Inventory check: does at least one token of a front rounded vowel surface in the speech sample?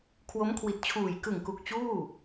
no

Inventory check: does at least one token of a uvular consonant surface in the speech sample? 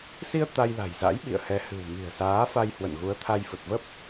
no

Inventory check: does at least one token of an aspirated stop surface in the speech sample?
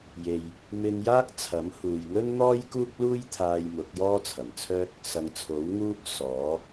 yes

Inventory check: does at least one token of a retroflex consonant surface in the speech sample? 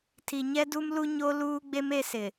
no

